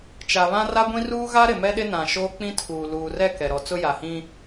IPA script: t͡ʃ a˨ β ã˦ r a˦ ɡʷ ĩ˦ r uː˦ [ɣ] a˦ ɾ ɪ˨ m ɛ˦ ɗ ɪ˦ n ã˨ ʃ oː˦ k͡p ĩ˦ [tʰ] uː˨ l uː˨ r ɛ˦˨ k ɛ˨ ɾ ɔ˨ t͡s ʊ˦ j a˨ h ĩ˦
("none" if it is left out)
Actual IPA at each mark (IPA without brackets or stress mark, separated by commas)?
ɣ, tʰ